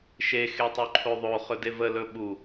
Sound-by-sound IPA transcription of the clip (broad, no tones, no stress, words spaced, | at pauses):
ʃe xetˤuǃʰoðˤo χɵdevə lɵɓu